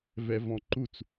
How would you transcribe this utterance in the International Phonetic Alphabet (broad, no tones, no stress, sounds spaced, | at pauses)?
v ɛ v ɔ̃ ǃ u t͡s